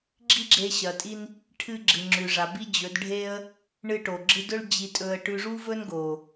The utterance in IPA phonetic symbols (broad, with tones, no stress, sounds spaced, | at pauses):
ɡ͡ǁ i˦ ɡ͡ǁ e˧ ɕ ɐ˨ tʼ i˧ n | ʈʰ ɨ˧ ɡ͡ǁ ɨ˨ ŋ͡ǁ ʉ˨ ʐ a˨ b i˦ d͡ʑ ɵ˨˦ d ɖʱ e˦ ə̯ | ɳ ɨ˧ ʈ o˨ ɡ͡ǁ ɨ˧ d ɵ˦ ɭ d͡ʑ i˧ tʼ ɵ˧ ə̯ ʈ ʉ˧ ʐ u˦ v ɵ˦ n ɡ o˨